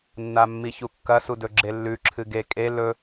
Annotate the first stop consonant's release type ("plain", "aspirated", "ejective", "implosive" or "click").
plain